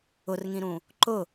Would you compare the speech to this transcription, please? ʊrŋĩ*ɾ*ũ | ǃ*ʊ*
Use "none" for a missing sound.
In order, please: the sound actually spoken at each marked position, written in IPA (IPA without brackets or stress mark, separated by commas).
ɾ, ʊ